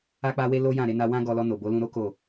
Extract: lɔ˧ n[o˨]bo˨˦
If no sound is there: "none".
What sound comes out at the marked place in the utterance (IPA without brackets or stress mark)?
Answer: o˨